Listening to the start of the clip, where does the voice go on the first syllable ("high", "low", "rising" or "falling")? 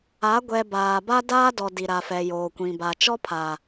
rising